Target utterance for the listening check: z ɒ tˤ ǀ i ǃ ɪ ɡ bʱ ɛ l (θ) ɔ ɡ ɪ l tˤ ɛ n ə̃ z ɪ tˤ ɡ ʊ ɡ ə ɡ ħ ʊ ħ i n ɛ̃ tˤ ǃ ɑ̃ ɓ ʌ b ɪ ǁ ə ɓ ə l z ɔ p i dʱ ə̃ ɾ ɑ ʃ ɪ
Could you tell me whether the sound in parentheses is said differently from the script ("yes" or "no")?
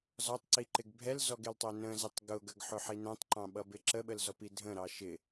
yes